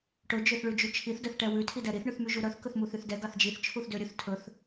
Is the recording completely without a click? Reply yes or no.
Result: yes